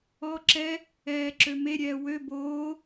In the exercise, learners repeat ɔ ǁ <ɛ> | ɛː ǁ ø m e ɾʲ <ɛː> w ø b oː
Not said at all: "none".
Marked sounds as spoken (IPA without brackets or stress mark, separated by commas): ɛ, ɛː